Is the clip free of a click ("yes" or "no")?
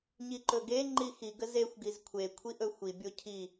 no